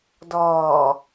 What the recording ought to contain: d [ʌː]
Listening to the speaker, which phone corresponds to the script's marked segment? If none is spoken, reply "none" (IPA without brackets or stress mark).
ɔː